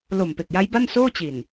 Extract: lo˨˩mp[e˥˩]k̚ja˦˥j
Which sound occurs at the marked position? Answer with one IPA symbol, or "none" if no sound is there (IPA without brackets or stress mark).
e˨˩